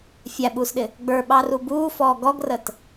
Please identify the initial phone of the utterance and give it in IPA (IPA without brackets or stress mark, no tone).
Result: fʲ